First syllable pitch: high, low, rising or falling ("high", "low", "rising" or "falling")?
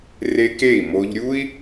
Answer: high